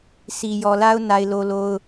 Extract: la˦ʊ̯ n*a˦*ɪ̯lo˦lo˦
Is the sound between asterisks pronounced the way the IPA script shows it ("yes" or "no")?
yes